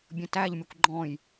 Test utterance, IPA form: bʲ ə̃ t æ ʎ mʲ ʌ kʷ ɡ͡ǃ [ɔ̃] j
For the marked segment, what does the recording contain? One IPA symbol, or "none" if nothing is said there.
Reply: ɔ̃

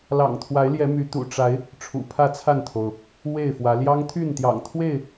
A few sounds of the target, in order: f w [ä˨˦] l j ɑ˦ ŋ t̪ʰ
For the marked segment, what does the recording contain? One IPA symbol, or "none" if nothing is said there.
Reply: ä˨˦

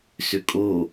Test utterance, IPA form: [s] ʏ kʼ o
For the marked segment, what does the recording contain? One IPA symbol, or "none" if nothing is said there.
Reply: s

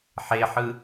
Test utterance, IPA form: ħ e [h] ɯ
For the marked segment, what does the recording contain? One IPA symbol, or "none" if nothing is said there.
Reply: ħ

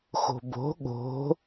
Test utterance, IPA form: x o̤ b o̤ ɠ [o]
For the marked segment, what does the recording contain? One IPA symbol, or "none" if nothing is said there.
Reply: o̤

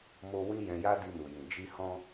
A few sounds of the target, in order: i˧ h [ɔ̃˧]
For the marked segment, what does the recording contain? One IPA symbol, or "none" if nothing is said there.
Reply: ɔ̃˧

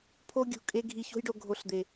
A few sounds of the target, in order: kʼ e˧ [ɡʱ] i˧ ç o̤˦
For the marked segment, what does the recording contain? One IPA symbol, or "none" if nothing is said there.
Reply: ɡʱ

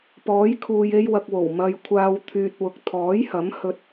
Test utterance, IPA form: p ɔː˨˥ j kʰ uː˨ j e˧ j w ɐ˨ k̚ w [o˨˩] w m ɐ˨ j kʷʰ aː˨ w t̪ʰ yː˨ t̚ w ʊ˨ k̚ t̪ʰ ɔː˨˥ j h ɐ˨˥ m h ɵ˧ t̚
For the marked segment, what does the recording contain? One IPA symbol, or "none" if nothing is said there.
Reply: o˨˩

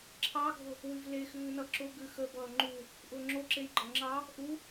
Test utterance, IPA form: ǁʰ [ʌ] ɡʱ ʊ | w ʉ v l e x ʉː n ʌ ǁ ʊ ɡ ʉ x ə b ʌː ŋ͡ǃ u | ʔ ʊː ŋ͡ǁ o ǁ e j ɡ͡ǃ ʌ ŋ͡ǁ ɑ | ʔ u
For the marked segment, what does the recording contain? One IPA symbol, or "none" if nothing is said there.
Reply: ɑ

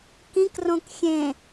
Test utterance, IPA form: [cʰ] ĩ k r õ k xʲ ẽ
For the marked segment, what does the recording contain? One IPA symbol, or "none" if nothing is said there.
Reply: k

